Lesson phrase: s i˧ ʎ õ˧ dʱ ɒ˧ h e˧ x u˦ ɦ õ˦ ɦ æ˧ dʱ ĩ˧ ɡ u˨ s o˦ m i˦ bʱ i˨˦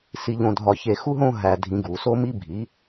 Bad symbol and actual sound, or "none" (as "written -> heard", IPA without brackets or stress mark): h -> ç